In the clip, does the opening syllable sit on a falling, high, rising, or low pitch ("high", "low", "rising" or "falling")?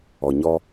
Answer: low